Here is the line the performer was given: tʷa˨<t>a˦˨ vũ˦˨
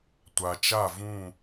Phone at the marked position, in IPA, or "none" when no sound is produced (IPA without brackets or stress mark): t͡ʃ